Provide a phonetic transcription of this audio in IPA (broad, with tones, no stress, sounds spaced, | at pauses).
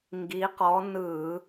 ŋ ɡ i˨˦ q ɔ˨˦ n ɯ˧˩˧